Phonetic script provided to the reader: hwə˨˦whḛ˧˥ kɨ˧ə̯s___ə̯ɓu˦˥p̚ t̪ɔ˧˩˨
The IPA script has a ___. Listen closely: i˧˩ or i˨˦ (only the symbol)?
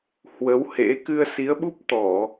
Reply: i˨˦